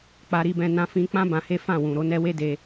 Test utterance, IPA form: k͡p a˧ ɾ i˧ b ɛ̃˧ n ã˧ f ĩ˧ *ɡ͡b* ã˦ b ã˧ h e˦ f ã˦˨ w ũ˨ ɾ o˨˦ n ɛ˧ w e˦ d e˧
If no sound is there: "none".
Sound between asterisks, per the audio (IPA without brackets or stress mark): k͡p